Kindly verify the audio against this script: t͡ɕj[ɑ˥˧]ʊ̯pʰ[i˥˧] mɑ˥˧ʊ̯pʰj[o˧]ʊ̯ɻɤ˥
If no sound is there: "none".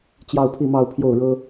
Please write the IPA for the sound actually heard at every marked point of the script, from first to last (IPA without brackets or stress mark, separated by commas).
ɑ˥˧, i˥˧, o˥˩